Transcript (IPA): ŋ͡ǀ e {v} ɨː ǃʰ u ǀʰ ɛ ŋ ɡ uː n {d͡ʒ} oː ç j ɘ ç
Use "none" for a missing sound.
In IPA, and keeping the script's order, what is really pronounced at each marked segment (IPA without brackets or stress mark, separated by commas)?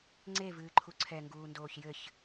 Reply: v, d